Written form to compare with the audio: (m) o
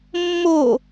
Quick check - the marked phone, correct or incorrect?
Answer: incorrect